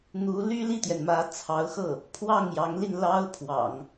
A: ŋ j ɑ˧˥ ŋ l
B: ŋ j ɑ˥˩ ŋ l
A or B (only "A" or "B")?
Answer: A